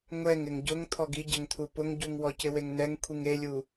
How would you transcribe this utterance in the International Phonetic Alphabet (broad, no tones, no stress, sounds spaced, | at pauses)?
ŋʷ ɛ ŋ ɪ ŋ ɟ ʊ ŋ t̪ʰ ɔ ɡ i ɟ ɛ ŋ t̪ʰ u p ʊ ŋ ɟ u ŋ w ɔ c ɪ w e ŋ n ɛ ŋ kʷʰ i ŋ e lʲ u